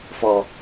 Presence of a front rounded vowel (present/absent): absent